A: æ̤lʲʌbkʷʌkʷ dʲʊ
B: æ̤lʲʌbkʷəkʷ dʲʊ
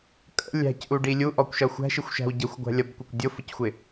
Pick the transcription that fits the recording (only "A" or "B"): A